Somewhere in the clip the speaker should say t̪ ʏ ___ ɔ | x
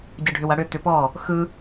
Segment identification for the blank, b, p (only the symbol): p